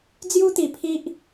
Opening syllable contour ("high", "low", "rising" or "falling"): high